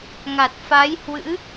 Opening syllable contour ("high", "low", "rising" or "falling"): low